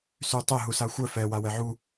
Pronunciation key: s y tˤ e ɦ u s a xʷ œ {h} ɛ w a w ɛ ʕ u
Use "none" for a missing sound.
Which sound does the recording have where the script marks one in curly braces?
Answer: f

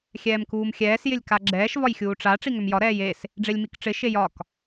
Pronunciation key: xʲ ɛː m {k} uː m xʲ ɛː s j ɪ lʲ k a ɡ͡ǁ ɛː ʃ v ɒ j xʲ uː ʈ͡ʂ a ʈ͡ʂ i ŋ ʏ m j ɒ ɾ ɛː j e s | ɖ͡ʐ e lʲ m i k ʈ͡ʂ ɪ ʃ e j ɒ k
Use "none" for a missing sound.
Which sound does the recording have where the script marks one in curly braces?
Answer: k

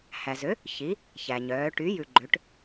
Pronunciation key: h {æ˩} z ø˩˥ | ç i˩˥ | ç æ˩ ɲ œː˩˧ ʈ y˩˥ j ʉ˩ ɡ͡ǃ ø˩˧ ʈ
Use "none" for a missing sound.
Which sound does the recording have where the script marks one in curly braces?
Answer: æ˩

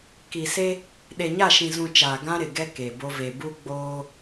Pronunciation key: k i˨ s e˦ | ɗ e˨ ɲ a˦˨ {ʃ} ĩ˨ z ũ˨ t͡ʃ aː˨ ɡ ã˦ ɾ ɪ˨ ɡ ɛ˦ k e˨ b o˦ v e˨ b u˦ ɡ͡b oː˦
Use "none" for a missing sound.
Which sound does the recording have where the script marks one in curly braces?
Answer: ʃ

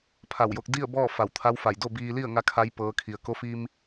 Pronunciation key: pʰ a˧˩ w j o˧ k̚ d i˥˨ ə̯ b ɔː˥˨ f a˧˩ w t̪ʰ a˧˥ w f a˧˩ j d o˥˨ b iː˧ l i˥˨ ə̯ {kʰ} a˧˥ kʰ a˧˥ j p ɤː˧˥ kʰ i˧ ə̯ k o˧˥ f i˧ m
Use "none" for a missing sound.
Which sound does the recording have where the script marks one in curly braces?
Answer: ŋ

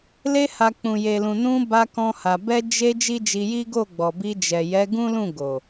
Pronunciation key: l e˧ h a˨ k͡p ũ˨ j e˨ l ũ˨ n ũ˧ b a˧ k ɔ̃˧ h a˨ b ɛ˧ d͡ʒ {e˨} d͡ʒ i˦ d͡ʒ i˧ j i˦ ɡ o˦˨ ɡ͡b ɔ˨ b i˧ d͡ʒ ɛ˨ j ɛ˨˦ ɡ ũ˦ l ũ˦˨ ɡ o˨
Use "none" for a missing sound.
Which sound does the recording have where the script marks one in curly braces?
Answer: e˧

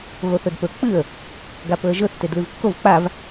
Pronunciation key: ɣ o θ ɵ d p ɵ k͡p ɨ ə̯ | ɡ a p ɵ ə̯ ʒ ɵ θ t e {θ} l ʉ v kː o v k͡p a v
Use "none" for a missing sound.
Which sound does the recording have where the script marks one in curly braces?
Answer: d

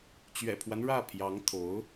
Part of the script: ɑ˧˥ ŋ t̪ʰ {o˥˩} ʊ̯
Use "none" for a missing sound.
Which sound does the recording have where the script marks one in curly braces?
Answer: o˧˥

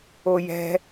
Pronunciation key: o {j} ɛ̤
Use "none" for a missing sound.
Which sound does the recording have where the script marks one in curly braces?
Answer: j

